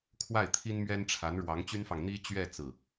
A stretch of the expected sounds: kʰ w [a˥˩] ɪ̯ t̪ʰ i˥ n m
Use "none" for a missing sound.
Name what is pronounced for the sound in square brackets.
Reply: a˥˩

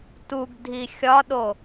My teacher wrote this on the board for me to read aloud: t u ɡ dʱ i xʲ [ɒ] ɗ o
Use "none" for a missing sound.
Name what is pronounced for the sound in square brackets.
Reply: ɒ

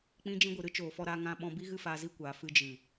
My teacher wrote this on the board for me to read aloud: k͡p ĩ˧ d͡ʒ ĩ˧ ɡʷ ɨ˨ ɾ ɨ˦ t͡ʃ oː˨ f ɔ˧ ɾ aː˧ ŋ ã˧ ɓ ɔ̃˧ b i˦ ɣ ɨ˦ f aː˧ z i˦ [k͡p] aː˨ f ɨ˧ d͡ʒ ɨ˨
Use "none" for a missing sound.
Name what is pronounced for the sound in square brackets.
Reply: kʷ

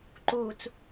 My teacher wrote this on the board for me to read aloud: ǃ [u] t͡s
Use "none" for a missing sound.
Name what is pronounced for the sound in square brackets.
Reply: u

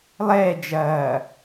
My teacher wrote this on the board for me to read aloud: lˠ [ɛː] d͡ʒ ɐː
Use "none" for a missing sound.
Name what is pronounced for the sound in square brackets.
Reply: ɛː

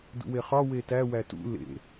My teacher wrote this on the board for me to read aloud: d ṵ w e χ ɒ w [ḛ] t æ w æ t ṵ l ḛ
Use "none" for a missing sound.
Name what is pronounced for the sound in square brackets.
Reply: e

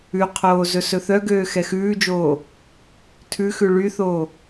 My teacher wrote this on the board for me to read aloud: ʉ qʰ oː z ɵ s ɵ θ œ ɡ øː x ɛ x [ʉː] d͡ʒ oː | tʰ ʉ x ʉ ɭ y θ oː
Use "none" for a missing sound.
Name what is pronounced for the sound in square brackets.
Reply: ʉː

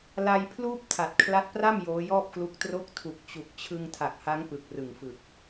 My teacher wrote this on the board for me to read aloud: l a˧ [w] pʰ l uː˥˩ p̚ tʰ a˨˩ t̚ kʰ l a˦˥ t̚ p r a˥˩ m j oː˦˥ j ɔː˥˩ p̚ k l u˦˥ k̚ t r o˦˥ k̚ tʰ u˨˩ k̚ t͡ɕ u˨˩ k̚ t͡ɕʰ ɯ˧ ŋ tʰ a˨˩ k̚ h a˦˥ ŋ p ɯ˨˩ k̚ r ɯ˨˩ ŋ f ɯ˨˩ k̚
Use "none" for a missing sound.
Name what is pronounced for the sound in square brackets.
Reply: j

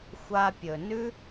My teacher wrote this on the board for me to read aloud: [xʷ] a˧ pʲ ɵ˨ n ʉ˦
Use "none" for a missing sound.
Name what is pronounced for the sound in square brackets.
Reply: xʷ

